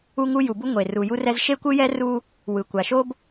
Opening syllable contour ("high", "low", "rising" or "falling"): high